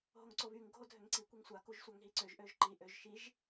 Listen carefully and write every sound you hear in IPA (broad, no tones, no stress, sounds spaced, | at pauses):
ɦ o ŋ ǀ o β y ŋ ɡʱ o dʱ ø ŋ ǀ i kʷ e ŋ sʷ a k u ʒ sʷ a ŋ ɦ i ǀ ø ʒ ʔ ø ʒ ǃ i ʔ ø ʒ ʃ i ʒ